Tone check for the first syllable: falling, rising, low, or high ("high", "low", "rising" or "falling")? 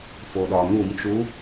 low